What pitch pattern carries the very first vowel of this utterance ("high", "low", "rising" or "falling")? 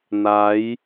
rising